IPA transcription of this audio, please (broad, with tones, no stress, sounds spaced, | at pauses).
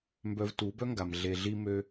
m b œ˧ v t u˨˦ b œ˦ ŋ ɡ a˨ m ɮ e˨ ɮ i˧ m ø˧